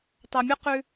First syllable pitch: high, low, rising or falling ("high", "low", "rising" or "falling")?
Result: low